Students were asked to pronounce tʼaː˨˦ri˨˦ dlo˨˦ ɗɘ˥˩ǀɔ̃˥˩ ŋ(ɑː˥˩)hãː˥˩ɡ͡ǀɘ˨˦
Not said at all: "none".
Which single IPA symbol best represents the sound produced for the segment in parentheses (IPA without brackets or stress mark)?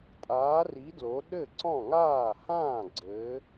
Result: aː˥˩